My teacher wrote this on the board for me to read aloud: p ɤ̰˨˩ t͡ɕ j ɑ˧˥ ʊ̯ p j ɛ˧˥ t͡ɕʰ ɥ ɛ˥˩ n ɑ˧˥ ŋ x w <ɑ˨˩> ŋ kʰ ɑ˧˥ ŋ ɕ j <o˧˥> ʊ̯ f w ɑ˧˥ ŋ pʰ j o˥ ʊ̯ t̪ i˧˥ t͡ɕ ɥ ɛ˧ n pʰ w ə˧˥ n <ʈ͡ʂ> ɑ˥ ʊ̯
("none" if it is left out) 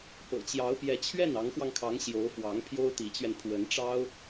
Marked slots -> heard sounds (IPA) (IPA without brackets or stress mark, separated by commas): ɑ˧, o˧˥, ʈ͡ʂ